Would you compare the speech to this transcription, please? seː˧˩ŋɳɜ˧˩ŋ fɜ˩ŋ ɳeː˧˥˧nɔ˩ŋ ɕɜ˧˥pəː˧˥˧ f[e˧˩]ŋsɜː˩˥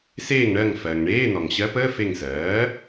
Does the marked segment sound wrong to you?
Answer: no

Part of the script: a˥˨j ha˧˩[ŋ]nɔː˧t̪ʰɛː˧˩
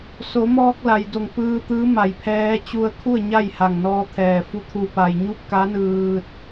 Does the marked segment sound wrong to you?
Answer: no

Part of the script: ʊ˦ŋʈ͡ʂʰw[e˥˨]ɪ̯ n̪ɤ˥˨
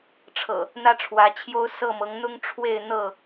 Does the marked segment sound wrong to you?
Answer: no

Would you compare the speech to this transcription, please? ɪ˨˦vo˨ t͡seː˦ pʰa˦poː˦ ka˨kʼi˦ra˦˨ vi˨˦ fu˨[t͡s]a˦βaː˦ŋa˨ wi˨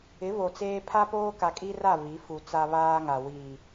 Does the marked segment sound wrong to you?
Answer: no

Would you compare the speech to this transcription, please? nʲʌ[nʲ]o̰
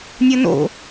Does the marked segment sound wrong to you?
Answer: yes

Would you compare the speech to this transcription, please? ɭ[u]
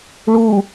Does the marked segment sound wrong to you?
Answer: no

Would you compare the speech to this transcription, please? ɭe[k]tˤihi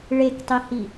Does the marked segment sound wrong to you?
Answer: no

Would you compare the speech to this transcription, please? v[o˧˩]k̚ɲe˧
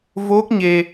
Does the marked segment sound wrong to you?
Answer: yes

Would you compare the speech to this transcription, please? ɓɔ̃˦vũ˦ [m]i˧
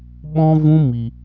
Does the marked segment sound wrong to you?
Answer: no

